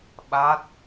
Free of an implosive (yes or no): no